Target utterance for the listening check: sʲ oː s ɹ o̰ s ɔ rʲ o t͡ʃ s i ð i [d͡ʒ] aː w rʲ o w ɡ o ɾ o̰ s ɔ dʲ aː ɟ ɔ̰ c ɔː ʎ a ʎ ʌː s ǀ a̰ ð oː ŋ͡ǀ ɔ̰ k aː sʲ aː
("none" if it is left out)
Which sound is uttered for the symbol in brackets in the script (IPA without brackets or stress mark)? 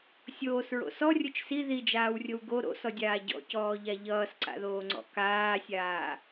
d͡ʒ